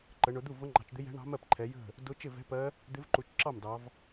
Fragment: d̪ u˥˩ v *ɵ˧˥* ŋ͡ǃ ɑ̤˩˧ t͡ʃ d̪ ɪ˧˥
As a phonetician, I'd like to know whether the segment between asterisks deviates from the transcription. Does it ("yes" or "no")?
yes